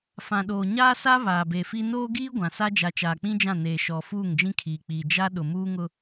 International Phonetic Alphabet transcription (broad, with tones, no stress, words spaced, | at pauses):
fã˨ɗoː˨ɲaː˦sa˦ βaː˨be˨fi˦ noː˦ɡiː˦ ɡʷã˨ sa˦ d͡ʒa˨t͡ʃaː˨k͡pĩ˦ d͡ʒã˦˨neː˨ ʃɔ˨ fuː˦˨ŋd͡ʒĩ˦kʰiː˨k͡piː˨ d͡ʒa˦ ɗʊ˨muː˦ŋʊ˦